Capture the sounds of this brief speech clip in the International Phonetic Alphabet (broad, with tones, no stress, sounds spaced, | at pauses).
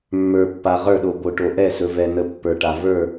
mː ə˞˨ pː a˨ ʁ ə˞˦˨ ɗ o˨ b o˨ ʈ o˨ ʔ ɛ˦˨ s ɵ˨ v ɛ˨ n ə˨ pː ə˞˨ ʈ a˨ v ə˞˦˨